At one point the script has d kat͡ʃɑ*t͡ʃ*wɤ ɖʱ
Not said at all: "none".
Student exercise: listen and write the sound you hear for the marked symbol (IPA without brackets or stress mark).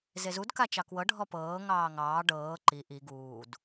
k